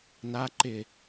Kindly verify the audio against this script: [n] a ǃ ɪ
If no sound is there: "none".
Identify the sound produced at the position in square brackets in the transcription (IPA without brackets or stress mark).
n